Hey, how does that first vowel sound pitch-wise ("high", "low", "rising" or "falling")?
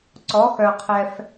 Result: rising